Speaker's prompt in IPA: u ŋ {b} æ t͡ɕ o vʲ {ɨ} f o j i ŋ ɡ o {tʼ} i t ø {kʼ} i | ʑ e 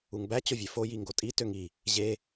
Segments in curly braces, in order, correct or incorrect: correct, incorrect: e, correct, incorrect: ŋ

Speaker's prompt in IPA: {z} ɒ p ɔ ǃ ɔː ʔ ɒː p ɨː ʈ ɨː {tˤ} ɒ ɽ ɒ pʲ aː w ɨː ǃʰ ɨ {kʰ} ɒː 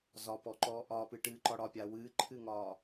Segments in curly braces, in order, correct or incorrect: correct, incorrect: ǃ, incorrect: ŋ

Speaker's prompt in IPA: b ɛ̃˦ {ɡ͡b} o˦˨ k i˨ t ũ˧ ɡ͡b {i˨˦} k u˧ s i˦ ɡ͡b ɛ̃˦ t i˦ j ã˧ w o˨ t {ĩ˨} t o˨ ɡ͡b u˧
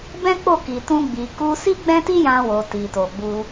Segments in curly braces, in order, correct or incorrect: incorrect: k͡p, incorrect: i˨, incorrect: i˨

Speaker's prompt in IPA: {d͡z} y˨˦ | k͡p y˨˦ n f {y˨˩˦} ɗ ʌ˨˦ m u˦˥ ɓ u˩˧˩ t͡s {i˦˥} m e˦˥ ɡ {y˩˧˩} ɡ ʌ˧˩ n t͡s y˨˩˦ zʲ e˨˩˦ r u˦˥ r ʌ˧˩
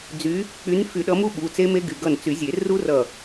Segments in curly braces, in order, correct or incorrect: correct, correct, incorrect: e˦˥, correct

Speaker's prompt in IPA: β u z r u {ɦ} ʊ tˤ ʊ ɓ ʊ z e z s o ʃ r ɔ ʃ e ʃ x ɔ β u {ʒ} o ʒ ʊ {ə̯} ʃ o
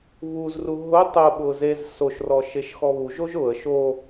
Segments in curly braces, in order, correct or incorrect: correct, correct, correct

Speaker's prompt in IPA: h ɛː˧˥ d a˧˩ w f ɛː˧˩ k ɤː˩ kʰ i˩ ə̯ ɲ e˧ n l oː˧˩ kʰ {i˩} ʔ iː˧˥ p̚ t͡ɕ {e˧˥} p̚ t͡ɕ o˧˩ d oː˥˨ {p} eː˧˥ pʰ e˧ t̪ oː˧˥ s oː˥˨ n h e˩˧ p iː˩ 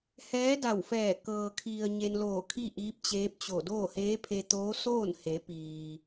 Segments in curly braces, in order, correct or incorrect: incorrect: i˥˨, incorrect: eː˧˥, incorrect: h

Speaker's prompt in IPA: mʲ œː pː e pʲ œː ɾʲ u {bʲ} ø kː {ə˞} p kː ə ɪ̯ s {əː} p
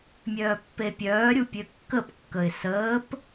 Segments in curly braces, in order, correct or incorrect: incorrect: pʲ, incorrect: ə, correct

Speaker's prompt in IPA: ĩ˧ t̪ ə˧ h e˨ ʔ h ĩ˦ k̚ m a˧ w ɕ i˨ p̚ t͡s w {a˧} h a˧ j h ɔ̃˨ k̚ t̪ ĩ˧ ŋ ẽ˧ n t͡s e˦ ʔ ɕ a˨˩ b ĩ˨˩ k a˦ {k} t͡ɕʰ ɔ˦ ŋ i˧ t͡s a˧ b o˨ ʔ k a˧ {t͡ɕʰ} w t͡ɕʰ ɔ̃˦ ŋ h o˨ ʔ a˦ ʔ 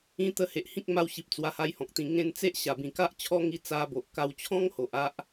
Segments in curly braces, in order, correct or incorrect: correct, incorrect: ʔ, incorrect: none

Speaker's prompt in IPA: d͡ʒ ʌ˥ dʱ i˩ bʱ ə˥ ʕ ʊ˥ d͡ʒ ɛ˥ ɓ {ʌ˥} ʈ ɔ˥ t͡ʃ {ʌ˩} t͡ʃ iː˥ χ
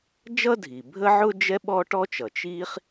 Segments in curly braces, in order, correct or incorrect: incorrect: ɔ˥, correct

